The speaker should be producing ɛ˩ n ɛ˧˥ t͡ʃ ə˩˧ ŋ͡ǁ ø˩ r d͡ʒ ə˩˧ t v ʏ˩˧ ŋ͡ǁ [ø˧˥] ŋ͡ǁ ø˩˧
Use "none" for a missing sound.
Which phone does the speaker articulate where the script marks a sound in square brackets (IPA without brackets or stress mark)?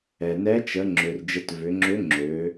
ø˧˥